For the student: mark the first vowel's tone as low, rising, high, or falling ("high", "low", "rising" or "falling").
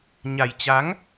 low